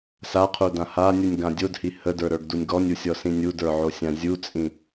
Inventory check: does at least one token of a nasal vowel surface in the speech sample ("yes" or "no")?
yes